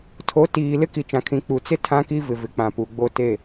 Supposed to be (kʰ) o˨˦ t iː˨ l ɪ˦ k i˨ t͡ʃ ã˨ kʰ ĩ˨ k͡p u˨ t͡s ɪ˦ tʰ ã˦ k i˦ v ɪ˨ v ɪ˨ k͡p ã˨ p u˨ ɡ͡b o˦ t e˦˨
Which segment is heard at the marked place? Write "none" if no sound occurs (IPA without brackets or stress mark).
tʰ